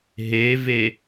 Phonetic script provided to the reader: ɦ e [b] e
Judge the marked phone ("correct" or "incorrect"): incorrect